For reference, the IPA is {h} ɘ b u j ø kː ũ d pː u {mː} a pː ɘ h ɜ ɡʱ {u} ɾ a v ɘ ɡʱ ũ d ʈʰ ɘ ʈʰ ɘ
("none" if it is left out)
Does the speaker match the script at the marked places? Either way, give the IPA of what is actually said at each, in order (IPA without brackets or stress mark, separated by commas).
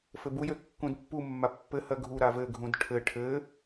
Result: f, mː, u